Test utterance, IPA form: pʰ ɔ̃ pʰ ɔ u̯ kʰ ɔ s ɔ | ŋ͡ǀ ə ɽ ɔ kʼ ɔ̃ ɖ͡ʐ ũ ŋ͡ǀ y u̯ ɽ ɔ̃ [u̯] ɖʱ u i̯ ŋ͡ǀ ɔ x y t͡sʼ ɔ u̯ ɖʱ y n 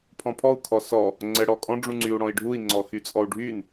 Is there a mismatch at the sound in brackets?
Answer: yes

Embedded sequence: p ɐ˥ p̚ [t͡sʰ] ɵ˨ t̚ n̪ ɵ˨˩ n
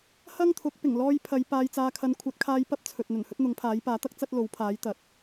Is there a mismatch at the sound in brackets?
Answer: no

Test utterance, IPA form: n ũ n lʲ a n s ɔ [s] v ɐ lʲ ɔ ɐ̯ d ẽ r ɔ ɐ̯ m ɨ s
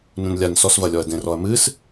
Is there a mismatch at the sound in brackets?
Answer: no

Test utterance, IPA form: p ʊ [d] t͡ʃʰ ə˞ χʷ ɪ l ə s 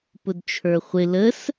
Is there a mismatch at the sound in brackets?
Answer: no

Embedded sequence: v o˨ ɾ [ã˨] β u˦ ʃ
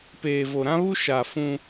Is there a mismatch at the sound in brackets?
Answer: yes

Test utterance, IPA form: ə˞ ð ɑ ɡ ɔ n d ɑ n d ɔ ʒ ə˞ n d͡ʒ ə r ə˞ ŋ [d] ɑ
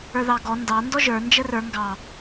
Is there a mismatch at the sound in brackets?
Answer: yes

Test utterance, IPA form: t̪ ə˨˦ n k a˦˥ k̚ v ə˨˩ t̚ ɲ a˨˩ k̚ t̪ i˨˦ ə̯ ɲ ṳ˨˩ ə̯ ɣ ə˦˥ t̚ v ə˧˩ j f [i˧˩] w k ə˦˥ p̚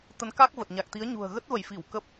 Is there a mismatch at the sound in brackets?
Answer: no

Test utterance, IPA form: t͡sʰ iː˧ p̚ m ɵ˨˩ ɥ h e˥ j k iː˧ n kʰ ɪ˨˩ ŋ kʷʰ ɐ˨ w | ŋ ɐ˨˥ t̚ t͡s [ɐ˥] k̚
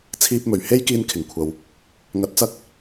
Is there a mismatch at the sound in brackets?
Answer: no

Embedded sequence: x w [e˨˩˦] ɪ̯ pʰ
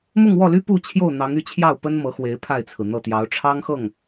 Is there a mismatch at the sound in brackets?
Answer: yes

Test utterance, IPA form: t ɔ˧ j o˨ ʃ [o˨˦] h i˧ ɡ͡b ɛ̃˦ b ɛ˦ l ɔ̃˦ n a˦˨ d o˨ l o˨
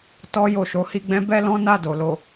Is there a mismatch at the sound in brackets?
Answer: no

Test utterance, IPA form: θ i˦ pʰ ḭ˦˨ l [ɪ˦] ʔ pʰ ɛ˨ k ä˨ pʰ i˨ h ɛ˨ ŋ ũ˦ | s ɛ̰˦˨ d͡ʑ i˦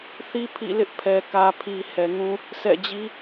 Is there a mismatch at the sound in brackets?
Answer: no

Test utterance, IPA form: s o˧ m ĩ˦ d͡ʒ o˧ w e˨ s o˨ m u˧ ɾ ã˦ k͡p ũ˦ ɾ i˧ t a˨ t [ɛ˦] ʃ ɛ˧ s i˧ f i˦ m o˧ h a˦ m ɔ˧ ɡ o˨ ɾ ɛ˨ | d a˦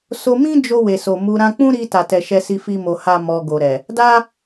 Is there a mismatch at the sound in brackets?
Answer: yes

